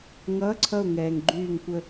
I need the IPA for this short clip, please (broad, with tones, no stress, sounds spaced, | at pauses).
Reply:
ŋ ʌː˧˥˧ ǀʰ ʌ˦˨ ʊ̯ ŋ ɛː˨ ŋ ɡ͡ǃ yː˦˨ ŋ kʷ ə˦˨